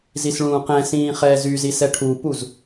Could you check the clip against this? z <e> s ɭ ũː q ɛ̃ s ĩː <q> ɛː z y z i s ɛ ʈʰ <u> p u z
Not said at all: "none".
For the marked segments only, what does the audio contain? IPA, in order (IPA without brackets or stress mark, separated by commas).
i, χ, u